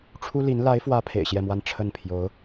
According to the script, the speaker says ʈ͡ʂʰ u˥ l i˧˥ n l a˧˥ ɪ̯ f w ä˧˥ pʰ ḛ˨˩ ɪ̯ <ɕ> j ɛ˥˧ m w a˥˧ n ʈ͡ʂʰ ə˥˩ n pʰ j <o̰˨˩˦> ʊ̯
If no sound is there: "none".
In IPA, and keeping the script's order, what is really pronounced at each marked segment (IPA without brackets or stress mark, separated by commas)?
ɕ, o˧˥